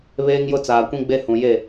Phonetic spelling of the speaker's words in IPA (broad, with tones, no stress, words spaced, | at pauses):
βeː˦ŋjʊ˦t͡saː˨kʷĩ˦ ɡ͡be˦hũ˨je˦˨